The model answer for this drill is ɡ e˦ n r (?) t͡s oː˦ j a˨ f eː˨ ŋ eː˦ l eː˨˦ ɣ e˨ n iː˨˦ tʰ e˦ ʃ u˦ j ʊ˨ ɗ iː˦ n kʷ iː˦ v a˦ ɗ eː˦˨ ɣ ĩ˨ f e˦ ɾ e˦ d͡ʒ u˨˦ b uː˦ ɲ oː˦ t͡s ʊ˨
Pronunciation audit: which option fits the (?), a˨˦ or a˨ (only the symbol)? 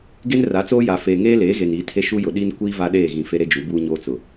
a˨˦